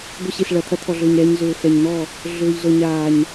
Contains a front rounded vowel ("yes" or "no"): yes